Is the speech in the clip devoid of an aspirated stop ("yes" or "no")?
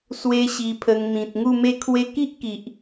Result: no